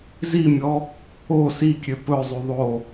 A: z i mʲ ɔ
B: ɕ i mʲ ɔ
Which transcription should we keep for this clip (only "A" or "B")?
A